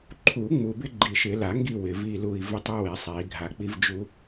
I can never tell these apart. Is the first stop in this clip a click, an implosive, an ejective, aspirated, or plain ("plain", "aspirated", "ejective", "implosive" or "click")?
click